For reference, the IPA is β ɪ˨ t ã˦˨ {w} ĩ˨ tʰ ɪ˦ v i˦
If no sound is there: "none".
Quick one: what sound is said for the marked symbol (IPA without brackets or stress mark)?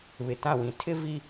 w